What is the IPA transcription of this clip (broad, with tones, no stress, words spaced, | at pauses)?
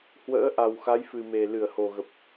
hwə̰ː˧˥ ʔa˨˩wxa˨˦jfɨ˨˩me˨˩ lɨ˧˩ə̯ho˨˩ɣə˨˩p̚